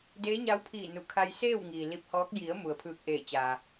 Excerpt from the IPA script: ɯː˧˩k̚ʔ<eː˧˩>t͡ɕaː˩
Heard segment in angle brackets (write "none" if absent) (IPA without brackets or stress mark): eː˧˩